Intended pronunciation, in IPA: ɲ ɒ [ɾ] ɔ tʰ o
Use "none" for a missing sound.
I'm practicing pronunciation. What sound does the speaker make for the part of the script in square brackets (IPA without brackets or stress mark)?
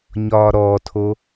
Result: ɾ